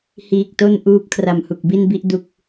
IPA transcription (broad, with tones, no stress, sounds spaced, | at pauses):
h iː˨˩ k̚ t o˥˩ n ʔ uː˦˥ p̚ kʰ r a˨˩ m h u˨˩ k̚ b i˥˩ n b i˦˥ ʔ d u˨˩ k̚